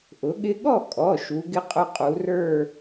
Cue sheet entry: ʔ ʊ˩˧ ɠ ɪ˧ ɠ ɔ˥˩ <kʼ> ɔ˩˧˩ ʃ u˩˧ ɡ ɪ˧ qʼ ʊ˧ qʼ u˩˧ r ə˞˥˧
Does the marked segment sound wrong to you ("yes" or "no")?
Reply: no